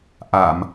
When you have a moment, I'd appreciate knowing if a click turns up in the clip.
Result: no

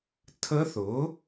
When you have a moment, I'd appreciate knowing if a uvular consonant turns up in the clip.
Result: no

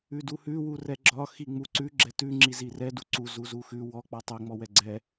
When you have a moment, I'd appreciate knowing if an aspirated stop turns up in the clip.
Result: no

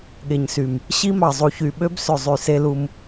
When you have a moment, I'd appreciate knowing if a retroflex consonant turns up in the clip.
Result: no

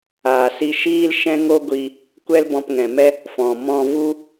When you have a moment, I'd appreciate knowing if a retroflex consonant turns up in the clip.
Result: no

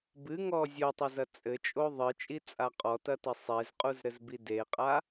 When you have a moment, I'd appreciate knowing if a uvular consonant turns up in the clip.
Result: yes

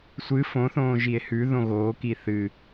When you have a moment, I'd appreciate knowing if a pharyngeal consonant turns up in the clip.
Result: no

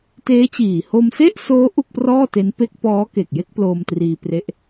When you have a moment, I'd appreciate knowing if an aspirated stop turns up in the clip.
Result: no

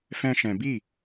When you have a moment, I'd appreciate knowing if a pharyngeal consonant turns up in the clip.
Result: no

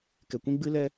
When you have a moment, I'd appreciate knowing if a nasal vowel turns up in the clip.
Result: yes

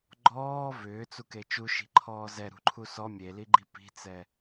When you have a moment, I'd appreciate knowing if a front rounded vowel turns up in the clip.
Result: yes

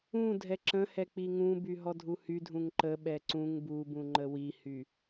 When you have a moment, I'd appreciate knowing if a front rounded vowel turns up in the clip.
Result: yes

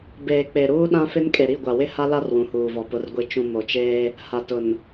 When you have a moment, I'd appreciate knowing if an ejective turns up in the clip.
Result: yes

